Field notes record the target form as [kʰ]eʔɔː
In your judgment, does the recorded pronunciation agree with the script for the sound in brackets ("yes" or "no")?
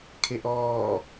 yes